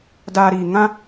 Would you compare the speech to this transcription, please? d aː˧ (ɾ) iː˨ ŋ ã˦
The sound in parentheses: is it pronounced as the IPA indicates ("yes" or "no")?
yes